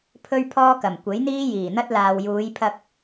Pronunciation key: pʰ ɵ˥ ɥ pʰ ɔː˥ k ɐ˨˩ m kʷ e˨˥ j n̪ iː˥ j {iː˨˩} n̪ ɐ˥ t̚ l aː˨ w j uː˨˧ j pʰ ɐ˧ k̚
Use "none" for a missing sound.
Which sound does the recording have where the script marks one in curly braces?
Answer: iː˨˩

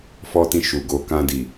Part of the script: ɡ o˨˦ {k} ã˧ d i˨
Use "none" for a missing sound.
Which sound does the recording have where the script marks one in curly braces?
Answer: k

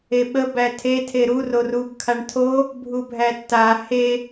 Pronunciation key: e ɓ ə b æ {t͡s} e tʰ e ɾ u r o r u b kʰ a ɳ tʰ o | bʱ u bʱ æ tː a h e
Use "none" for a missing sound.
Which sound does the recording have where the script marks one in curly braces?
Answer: tʰ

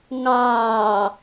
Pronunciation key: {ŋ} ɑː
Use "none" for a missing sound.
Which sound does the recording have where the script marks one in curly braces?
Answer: ŋ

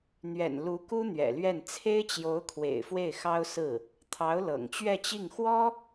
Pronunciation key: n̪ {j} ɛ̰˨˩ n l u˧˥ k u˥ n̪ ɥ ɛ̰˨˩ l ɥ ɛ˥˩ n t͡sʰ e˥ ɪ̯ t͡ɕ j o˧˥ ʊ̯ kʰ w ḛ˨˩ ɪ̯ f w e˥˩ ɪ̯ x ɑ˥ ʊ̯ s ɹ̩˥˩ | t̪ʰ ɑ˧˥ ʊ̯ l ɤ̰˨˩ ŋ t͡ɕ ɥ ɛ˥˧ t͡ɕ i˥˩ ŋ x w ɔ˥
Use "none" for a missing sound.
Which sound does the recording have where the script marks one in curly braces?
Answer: ɥ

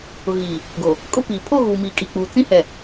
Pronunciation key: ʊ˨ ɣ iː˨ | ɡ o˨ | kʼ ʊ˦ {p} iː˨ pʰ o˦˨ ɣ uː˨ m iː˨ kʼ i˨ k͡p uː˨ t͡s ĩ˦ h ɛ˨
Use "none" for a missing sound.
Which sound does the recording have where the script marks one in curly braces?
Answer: p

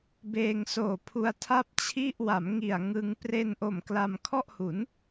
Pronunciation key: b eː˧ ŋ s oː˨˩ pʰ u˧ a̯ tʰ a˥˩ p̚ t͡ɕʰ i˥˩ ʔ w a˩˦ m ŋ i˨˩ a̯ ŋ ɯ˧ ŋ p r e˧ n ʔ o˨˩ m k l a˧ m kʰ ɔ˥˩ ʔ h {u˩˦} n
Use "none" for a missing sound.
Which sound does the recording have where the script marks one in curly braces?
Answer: u˩˦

